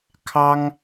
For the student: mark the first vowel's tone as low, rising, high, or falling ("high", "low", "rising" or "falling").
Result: high